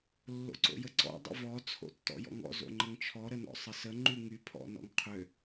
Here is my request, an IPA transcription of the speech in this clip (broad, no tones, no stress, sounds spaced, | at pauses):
lː o̰ ǀ o̰ j ə ǀ ɔ̰ dˤ ə̰ v ɔ t͡sʰ o̰ tː ɔ̰ j ɔ̰ ŋ ɔ̰ z o̰ ŋ͡ǃ ə ŋ t͡ʃʰ ɔ ɾ ə n ɔ̰ sˤ ə s ə ŋ͡ǃ y ŋ y pʰ ɔ̰ n ɔ̰ ŋ qʰ ø